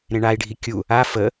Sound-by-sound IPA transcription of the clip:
ɾ ẽ ɳ a i̯ ɖʱ i kʲ u | a f ə

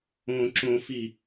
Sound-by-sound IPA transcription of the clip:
õ ǁ õ f i

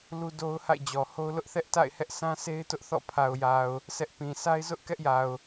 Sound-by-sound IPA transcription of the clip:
l u˦ d o˦ ʊ̯ h a̰˦˨ ɪ̯ d͡ʑ ɔ˨ h o˦ ʊ̯ l ʊ˦ ʔ θ ɛ˦ ʔ t a̰˦˨ ɪ̯ h ɛ˦ ʔ sʰ ã˦ sʰ e˦ ɪ̯ t ʊ˦ ʔ θ ɔ̰˦˨ pʰ a˨ ʊ̯ j a˨ ʊ̯ | sʰ ɛ˦ ʔ p ĩ˨ sʰ a˦ ɪ̯ z ʊ˦ ʔ k ɛ˦ ʔ j a˨ ʊ̯

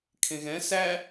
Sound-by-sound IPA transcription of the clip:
kʰ ẽ ɣ ɛ̃ s æ

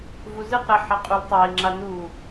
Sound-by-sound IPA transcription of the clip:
v u z ɨ q ɾ a ħ a qʼ u l tˤ a i̯ ŋ͡ǁ a n u

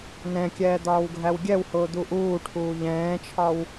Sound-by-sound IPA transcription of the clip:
n ɛ̃ kʲ ɛː d̪ ɒː w ɡʱ æ w ɡʲ ɛ w h ʊː d̪ u ʔ uː ʈʰ uː ʎ ɛ̃ː t͡ʃʰ ɒ w

